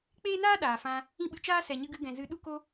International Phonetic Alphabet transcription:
k͡peː˦naː˦ ɗaː˨fã˧ | ĩ˦ɓɨ˧t͡ʃaː˦ sɛ˨ɲɨ˧ ɡɨ˧ ɡɛ̃˨zɨ˨˦ ɗu˦ko˦

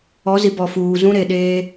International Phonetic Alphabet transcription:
ɔ˨˦zi˨bɔ˨ fuː˨zũ˦ɾe˨ ɗeː˦

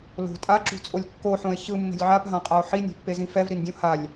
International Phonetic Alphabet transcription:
lo̤ tʼaǁṳt͡sʼolʲ kːoħõe̯ çɯmːe̤lʲ ʕapɦãqʼao̯ ħinʲe̤pːezĩ fɛvɾindʲõ halʲ

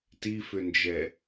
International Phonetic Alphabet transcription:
tifʏnd͡ʒɛ

